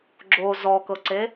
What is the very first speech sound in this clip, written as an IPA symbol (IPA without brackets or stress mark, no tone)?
ɡ͡ǁ